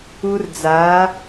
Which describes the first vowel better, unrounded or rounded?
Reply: rounded